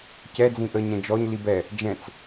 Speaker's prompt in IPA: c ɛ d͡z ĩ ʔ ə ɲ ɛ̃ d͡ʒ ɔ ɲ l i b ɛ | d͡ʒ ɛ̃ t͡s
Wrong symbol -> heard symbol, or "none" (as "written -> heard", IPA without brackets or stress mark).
none